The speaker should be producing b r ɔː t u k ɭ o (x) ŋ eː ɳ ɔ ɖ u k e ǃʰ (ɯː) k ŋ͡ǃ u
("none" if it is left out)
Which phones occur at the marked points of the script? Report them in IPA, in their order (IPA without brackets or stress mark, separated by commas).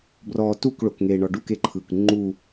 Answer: k, ɯː